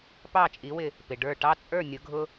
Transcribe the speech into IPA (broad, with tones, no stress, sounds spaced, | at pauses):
p ɑ˥˨ t͡ʃʼ i˨˥ w ɪ˧˩ | p ɪ˩ ɖ ə˞˧˩ ʈ ɑ˦ t͡sʼ ə˞˥˨ nʲ ʊ˨˥ ɡʱ ʊ˦